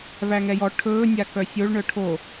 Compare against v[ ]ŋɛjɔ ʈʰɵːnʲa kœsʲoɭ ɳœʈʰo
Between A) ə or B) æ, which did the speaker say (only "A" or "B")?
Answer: B